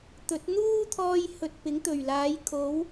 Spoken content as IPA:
t̪ ɵ˨˥ t̚ n̪ uː˥ t̪ʰ ɔː˧ j h ɵ˨ t̚ p ɪ˨˥ ŋ t̪ ɵ˨˩ ɥ l aː˨˥ j kʰ o˨˥ w

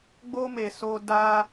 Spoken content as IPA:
ɡ͡b o˦ m e˧ s o˦ d a˦

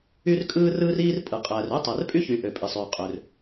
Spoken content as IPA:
y˥ r kʼ ɯː˥ r ɯː˥ r iː˥ r pʼ ɯ˩ qʼ æː˩ r ø˥ tˤ æ˩ r pʼ y˥ ç y˩ ʔ ø˩ pʼ i˩ sˤ yː˩ qʼ ø˩ r

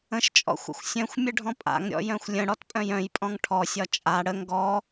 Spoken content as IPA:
ə̃ ʃ t͡ʃʼ ɔ̰ xʷ ə̰ xʷ sʲ œ̃ xʷ mʲ ə ɖʱ ɔ̃ pʼ a̰ ŋ ɾʲ ɔ̰ j œ̃ xʷ lʲ ə̃ ɽ ɔ t pʼ œ̃ j œ̃ j pʼ ɔ̃ ŋ ʈʰ ɔ sʲ ɒ t͡ʃʼ a ɽ ə ŋ ɡ ɔ

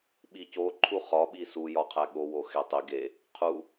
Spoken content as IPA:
ɓ i c o ǃʰ u χ ɒ ɓ i s u j ɒ qʰ æ ɠ o w o x e tˤ i ɡ e | qʰ u

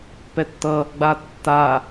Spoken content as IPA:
p ɛ tː ʌ | ɡ͡b a tː a

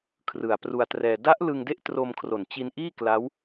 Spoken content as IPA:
kʰ r ɯ˨˩ a̯ p r u˧ a̯ t r ɛː˧ d a˦˥ ʔ l ɯ˧ ŋ d e˦˥ ʔ t r o˧ m kʰ r o˨˩ n t͡ɕ i˧ n ʔ iː˥˩ k l a˦˥ w

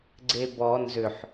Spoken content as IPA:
ɡ͡ǀ e b ɔ n z ʏ ħ

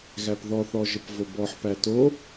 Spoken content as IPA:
ɣ æ p ð ɔ θ ɔ ʒ ə p v o b ɔ ħ p æ t o

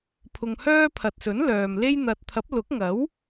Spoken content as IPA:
pʰ ʊ˧ ŋ h œː˥ pʰ ɐ˨ t̚ s ɵ˨˥ n l œː˨ m l e˥ j n̪ ɐ˧ t̚ t̪ʰ ɐ˨˥ p̚ l ʊ˨˥ k̚ ŋ ɐ˨˥ w

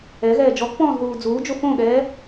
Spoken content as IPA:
ɛ ɣ ɛː d͡ʒ ɔ k p ɔ̃ː z ð uː d͡z uː d͡ʒ o f õ ɠ ɛː

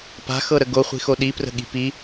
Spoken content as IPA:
p a̤ x ɤ ɾ ə ɡ o χʷ i̤ x o ɗ i p r ə̤ ɠ i̤ p i

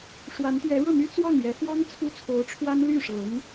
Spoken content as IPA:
ʂ w a˧˥ n t̪ ɥ ɛ˧˥ ɻ ɤ˥˩ n̪ y˥ t͡s w ɑ˥˩ ŋ j ɛ˧˥ x w ɑ˥ ŋ t͡sʰ u˥ t͡sʰ o˧˥ ʊ̯ ʈ͡ʂʰ w a˥ n l y˥˩ ʂ ɤ˧˥ ŋ

